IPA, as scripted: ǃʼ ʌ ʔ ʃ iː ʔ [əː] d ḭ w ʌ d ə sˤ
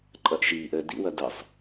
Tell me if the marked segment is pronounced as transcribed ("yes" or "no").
yes